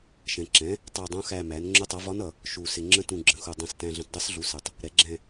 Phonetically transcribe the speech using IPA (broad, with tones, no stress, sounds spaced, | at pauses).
ʃ ɛ̃˨˩ ǁ ɛ̃˩˥ | tˤ ɑ˦˨ dˤ ũ˧˥ x æ˦˨ m æ˩˥ n ŋ͡ǁ ʊ˧˥ tˤ ʌ˩˥ v ɒ˧˥ n ʌ˨˩ | ʃ u˨˩ s ɪ˨˩ ŋ͡ǁ ə̃˧˥ t ũ˨˩ ɡ͡ǁ ə̃˩˥ x u˨˩ dˤ ɛ̃˨˩ s t æ̃˨˩ ɮ ə̃˨˩ t dˤ ɛ˧˥ s ɮ u˩˥ s ɪ˨˩ tˤ | ɾ ɛ˩˥ ɡ͡ǁ ɛ̃˦˨